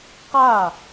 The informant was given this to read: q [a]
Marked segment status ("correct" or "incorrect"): incorrect